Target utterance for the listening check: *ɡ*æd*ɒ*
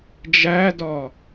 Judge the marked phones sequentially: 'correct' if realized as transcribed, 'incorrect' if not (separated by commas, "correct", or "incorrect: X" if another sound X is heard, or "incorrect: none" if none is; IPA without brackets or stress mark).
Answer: incorrect: d͡ʒ, correct